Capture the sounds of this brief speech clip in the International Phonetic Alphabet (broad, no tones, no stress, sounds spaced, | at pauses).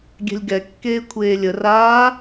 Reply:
ɡʲ ɛ̤ lʲ ɡ ɛ kː eː kʷʰ eː lʲ ə r aː